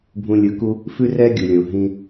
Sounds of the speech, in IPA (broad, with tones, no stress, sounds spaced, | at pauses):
bʱ ũ˧ lʲ ɯ˨ k u˦ | f ʉ˦ r ɛ˦ ɡʲ u˨ lʲ õ˨ ɦ ĩ˧